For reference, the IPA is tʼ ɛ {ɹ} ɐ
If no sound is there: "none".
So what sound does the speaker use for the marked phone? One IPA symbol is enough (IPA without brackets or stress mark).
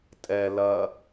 l